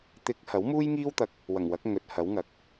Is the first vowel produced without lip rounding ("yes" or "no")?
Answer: yes